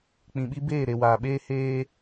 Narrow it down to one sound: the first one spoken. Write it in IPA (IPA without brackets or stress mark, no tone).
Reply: k͡p